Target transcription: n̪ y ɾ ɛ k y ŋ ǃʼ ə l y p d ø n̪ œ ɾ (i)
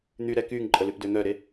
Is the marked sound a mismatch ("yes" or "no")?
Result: yes